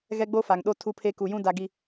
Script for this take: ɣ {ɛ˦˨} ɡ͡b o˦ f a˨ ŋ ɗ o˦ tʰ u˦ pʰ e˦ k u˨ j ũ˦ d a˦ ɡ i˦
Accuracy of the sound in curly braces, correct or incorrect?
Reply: incorrect